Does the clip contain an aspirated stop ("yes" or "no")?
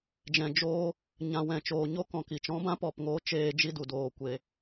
no